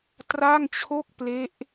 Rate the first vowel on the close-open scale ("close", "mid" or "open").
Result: open